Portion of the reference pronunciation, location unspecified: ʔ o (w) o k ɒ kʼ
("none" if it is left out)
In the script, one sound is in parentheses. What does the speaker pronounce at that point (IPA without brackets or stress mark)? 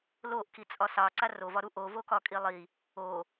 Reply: v